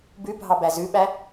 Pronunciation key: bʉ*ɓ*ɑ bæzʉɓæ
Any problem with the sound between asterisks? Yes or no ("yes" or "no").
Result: yes